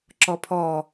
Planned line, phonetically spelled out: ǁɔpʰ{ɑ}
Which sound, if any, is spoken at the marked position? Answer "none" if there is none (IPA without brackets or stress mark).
ɔ